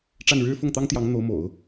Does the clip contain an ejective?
no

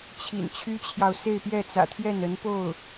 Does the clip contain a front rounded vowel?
yes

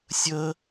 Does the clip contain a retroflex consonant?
no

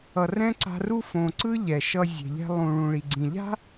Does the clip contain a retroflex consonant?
yes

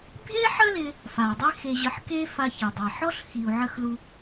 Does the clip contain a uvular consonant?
no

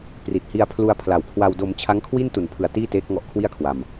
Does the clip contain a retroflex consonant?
no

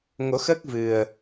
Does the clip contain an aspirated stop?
no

